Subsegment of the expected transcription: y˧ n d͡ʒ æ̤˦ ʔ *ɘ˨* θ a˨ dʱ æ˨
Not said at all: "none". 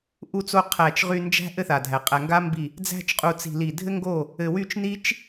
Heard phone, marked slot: ɘ˦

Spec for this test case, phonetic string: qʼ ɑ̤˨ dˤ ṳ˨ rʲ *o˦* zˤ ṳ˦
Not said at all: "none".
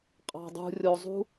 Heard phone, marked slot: o˨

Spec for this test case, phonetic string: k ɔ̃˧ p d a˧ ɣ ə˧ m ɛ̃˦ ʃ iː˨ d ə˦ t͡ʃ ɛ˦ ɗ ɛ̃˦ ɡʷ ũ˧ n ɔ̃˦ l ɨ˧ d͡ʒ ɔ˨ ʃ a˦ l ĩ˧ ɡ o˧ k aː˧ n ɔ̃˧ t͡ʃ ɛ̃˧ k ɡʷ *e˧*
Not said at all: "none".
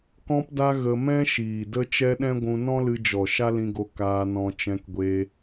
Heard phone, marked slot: e˧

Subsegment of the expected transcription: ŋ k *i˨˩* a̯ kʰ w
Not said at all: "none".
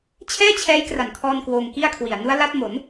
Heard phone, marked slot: i˥˩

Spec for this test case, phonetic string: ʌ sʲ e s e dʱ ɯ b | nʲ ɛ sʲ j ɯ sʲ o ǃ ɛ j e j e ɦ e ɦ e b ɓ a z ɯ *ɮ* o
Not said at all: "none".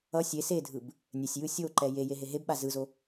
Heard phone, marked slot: z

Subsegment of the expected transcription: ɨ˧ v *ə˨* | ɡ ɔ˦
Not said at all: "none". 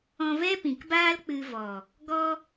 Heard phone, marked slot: ɔ˨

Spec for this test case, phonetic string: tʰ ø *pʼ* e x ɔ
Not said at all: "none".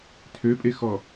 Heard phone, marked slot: pʼ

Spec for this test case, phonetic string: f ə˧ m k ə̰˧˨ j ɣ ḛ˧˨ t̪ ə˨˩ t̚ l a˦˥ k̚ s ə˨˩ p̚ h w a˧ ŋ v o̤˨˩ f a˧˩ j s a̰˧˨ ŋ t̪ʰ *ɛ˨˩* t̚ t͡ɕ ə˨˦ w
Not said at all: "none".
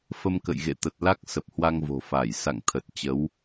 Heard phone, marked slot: ə˨˩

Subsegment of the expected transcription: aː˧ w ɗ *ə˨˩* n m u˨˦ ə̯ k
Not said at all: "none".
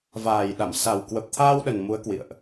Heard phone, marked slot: ə˨˩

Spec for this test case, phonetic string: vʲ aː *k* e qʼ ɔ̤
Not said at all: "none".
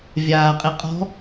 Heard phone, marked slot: qʼ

